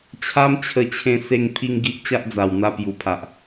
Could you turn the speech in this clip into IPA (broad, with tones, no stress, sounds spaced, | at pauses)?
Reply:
t͡ɕʰ a˦ m t͡ɕʰ ə˧ t͡ɕʰ ẽ˧ s e˧ ŋ pʰ i˧ ŋ ɡ i˦ ʔ t͡ɕ a˦ ʔ d͡z a˨˩ w n̪ a˧ p j u˨˩ pʰ a˨ ʔ